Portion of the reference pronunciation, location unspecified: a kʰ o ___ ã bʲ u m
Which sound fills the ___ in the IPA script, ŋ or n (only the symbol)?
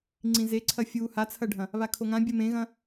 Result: ŋ